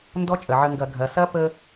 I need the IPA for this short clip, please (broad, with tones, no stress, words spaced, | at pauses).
ndɔ˧˥t͡ʃʼə˩ ʕə˧ŋɡɐ˧˩˧ ɡʱɐ˩sɐ˧˥ pə˧